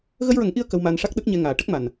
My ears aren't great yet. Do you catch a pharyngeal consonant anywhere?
no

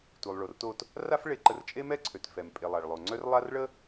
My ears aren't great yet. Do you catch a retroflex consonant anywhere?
yes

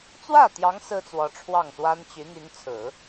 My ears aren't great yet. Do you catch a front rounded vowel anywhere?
yes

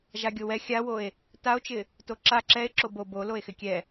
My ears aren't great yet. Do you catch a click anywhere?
yes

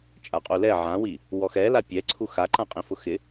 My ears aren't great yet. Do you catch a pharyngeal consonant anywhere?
yes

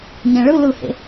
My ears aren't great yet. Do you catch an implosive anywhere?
no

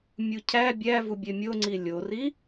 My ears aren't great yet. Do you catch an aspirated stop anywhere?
yes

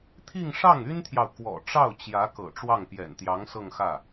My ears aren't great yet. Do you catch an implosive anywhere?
no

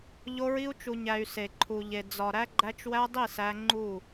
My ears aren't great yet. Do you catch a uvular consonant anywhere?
no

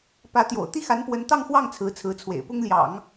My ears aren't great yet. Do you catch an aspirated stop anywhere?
yes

